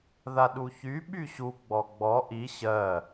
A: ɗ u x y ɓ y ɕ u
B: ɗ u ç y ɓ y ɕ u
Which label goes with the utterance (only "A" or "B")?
B